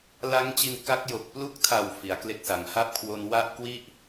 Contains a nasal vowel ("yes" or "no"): no